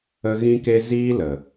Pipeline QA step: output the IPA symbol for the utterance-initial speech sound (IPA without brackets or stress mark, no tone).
ə